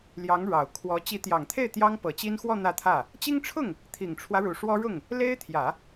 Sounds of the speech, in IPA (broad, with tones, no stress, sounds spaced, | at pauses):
l j ɑ˧˥ ŋ ɻ ɑ˨˩ ʊ̯ kʰ w ɔ˧˥ t͡ɕ i˧˥ t̪ j ɑ˨˩ ŋ t̪ʰ e˥˩ ɪ̯ t̪ j ɑ˥ ŋ p ɤ˨˩ t͡ɕ i˥ n x w ɔ˥˧ n̪ ä˥˧ t̪ʰ ä˥˩ | t͡ɕ i˥ ŋ ʈ͡ʂʰ ʊ˥˩ ŋ | t̪ʰ i˨˩ ŋ ʈ͡ʂʰ w ä˦ ɻ u˨˩ ʂ w ɔ˥ ɻ ʊ˥˩ ŋ | l e˥ ɪ̯ t̪ʰ j ä˨˩˦